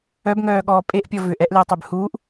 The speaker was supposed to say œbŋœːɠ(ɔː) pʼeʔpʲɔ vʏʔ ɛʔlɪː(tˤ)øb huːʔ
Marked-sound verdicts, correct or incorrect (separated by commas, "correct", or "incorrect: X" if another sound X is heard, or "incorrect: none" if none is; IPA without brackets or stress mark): correct, correct